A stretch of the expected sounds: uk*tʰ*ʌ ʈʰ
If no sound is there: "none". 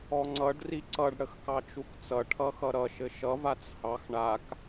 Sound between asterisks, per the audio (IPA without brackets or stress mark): t͡s